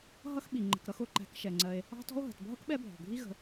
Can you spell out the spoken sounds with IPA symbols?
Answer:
ɦ ʌ˦ x ɓ i˩ ŋ͡ǃ ə̤˨ k ɾ ʌ˦ x ʊ˩ ǃ æ̤˨ k ʃ ɛ˩ ŋ͡ǀ ɜ˨ e̯ | ɑ̤˥ t ɔ̤˥ o̯ ɦ ə̤˩ t bʱ ʌ˥ k ɓ ɛ˦ bʱ ɔ̤˩ ɡʱ i˦ ɣ ə̤˨

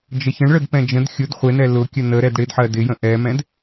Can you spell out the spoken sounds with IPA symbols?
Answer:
d͡ʒ ə ç ə̃ ɳ ɭ ə d p ɛ̃ d͡ʒ ə̃ d xʲ ʊ d χʷ ɪ n ɛ l ʊ kʲ ə n ə ɾ ɛ d ɽ ɪ d ħ ɜ d ɪ j ə̃ ʔ ɛ m ɛ̃ d

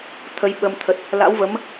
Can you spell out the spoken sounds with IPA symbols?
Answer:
t̪ʰ ə˨˦ j ɓ ə˧ m t̪ʰ ə˨˩ t̚ | l a̰˧˥ w v ə˨˦ m

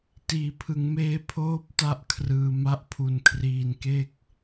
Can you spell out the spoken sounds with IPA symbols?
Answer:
t iː˩˦ pʰ ɯ˩˦ ŋ m eː˦˥ pʰ oː˥˩ p̚ t a˥˩ ʔ kʰ r ɯː˧ m a˦˥ ʔ pʰ u˧ n kʰ r iː˧ n k e˥˩ k̚

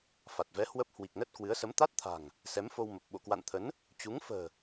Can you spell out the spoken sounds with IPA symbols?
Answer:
f a˨˩ t̚ v ɛ˨˦ h w ə˦˥ p̚ h w i˨˩ k̚ n ə˦˥ t̚ k w ɨ˨˦ ə̯ s ə˨˦ m t̪ a˦˥ t̚ t̪ʰ a̤˨˩ ŋ | s ɛ˨˦ m f o˧ w m ə˨˩ p̚ ɓ o̰˧˨ k w a̰˧˨ n t̪ʰ ə˨˦ n | t͡ɕ u˨˦ ŋ f ə̤ː˨˩

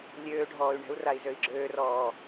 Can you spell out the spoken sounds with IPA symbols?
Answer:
lʲ øː ɖʱ ɔː y̯ ɳ ɛ̤ u̯ r a i̯ z ø i̯ ɡ͡ǁ øː r ɔː

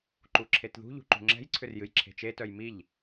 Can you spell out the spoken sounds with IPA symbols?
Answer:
ǃ u ǁʰ e t ð ṳ ʎ ṳ ǃ ṳ ŋ͡ǁ ɛ̤ j ǀʰ ʏ r j ɨ j ǁʰ e̤ t͡ʃ e t œ j m i ʎ

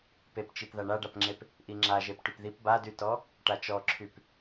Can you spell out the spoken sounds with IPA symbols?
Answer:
p e p t͡ʃ i p ð a ɳ a ɖ a p ŋ͡ǁ e p | ʔ i ŋ͡ǁ a ʒ e p ʈ y p ð i p b a d y t ɔ | ʈ a t͡ʃ ɔ ǁʰ y p

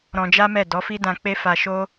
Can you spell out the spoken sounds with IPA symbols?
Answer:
ɾ ɔ̃˧ d͡ʒ a˦ m ɛ˦˨ d ɔ˨˦ f i˦ d ã˧ k͡p e˦ f a˧ ʃ o˦

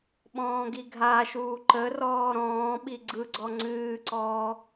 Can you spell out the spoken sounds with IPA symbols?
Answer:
ɓ ɔ̃ː ɡ i ɡʱ a ʃ uː ǃ ə r ɔː ɾ ɔ̃ː ɓ i ɡ͡ǀ ɯ ɡ͡ǀ ɔ ŋ͡ǀ ɨː ǀ ɔː

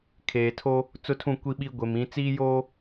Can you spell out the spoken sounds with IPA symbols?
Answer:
kʰ eː˨ tʰ o˦ | t͡s ʊ˦ tʰ ũ˦˨ kʷ i˦ ɓ i˦ ɡʷ e˨ m ĩ˨˦ t͡s iː˦ j oː˦

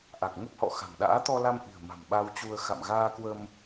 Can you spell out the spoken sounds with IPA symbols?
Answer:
ʔ a˨˩ k̚ ŋ ə˦˥ p̚ h ɔ̰˧˨ x a̤˨˩ ŋ ɗ a̰ː˧˥ t̪ ɔ˧ l a˧ m ʔ i̤˨˩ ə̯ m a̤˨˩ m ɓ a˧ w t͡ɕ u˧ ə̯ x a̰˧˨ m ɣ aː˧ k w ə˧ m

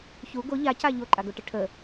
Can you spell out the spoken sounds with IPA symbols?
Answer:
ç u ɡ o ʎ a c a ʎ o ǃʼ a ɡ o ʈ ə ʈʰ ə

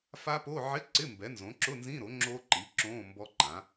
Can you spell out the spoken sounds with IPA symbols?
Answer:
f a˦˥ p o˧˥˧ ʕ ɪ˧˥˧ ǀ ɪ˧˥˧ m b ɛ˩˥ n z õ˩˥ ǁ ʊ˧˥˧ n z ĩ˧˥˧ ɾ o˩˥ ŋ͡ǁ o˦˥ ǃ i˩˥ ǁ õ˧˥˧ m b ɔ˦˥ ǃ ã˩˥

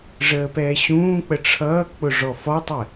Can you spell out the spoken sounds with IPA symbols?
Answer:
ʐ əː p ɛː ɕ ũː k͡p ə ʈ͡ʂʰ ʌː k͡p ʊ ʐ ɔ f ɒ tˤ ɛ

